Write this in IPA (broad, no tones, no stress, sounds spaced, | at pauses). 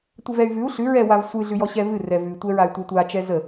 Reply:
tʷ ə v ɛ y̯ v ʉ u̯ ɬ ʉ ɹ ɛ w a v sʷ ɨ ɮ ʉ j ɔ ɕ ɛ v ɨ r ɛ v ʉ tʷ ɛ ɹ a y̯ tʷ ɛ tʷ a t͡ʃ ɛ z ə